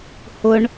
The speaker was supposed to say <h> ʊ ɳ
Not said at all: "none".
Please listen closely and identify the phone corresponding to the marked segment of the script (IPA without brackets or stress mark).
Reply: h